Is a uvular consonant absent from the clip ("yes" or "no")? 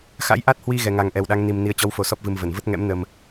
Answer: yes